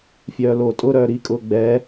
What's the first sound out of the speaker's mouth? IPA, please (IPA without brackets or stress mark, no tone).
fʲ